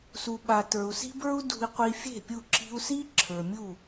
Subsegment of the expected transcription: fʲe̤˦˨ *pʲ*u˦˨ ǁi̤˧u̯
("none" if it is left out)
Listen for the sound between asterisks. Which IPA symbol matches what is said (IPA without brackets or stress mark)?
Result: pʲ